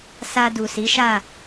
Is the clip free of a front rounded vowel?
yes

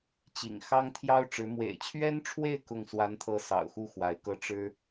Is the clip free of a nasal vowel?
yes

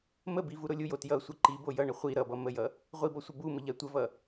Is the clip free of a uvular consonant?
no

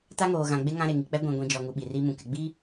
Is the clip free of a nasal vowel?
no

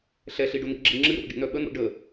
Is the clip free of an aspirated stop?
yes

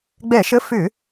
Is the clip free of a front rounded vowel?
no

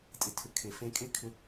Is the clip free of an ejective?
no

